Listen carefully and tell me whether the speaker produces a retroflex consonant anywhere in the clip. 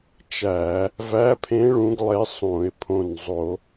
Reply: yes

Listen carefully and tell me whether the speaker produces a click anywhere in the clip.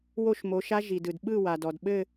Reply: no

